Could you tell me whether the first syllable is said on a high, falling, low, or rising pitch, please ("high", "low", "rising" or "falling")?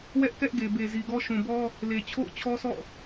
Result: high